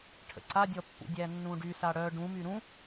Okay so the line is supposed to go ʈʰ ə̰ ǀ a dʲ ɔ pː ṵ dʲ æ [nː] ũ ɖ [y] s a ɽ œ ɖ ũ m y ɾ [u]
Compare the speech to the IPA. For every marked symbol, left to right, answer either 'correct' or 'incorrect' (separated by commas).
correct, correct, incorrect